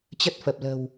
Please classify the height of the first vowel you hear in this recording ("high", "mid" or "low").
mid